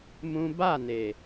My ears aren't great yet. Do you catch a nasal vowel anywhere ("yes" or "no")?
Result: yes